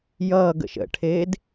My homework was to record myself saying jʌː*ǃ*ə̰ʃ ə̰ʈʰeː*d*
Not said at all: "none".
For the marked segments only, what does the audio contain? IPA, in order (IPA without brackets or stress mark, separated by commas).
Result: ɡ, d